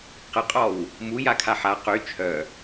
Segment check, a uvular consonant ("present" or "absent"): present